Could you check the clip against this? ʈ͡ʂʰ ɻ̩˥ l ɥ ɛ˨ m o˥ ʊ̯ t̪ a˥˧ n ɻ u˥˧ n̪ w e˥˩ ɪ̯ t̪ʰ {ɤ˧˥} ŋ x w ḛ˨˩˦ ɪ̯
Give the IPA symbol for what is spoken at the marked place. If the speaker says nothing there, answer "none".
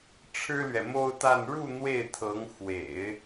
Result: ɤ˧˥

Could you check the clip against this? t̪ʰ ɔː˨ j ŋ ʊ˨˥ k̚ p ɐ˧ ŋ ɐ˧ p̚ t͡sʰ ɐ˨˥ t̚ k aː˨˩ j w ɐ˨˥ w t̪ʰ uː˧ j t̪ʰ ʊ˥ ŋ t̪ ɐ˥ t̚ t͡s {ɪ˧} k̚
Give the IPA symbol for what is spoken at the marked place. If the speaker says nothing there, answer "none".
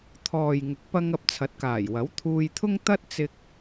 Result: ɪ˧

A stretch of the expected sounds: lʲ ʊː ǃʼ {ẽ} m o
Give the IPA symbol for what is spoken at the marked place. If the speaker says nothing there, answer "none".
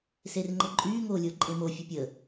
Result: ẽ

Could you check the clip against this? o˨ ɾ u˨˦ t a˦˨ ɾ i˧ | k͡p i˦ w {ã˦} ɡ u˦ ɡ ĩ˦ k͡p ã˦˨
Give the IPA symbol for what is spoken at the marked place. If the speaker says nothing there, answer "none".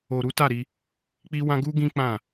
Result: ã˦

